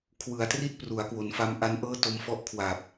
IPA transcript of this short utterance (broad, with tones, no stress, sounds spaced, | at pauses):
kʰ w ɯ˩˦ a̯ t r i˥˩ t̚ p r u˩˦ a̯ k w o˩˦ n f a˦˥ m ʔ a˦˥ n ʔ ɤː˥˩ t o˧ m f ɔ˦˥ ʔ kʰ w a˨˩ p̚